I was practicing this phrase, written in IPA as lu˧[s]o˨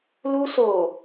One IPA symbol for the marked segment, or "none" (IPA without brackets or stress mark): s